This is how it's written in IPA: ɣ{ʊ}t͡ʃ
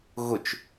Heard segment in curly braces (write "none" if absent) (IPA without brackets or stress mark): ʊ